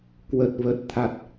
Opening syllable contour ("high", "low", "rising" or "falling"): low